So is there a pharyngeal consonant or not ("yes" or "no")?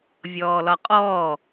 no